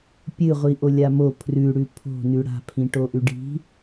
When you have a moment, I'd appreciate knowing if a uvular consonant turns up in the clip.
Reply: yes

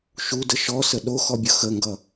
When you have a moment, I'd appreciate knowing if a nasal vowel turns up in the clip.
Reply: no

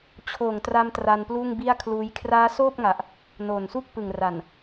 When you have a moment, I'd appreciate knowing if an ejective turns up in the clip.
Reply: no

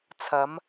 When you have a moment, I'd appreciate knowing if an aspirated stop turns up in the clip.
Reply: yes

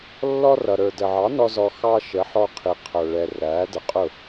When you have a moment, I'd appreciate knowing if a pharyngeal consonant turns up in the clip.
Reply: yes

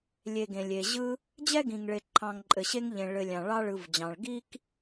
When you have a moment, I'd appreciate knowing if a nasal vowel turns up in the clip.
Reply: yes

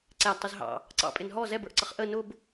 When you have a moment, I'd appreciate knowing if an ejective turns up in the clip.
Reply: yes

